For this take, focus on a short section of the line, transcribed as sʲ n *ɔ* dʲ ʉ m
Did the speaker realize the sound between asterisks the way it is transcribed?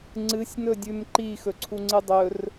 no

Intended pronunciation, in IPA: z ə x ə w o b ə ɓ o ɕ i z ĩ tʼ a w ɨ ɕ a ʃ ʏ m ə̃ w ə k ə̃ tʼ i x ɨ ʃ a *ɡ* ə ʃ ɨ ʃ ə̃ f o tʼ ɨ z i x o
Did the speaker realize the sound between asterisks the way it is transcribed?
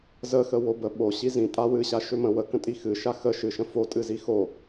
no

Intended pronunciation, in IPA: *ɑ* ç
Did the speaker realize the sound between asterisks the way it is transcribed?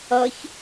no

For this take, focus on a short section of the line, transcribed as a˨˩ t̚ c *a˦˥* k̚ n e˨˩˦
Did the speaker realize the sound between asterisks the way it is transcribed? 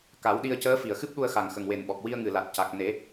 no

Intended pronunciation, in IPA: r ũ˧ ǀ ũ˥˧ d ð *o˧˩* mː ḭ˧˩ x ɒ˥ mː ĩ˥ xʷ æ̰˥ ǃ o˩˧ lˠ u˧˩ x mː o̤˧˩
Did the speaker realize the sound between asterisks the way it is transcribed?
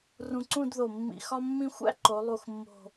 yes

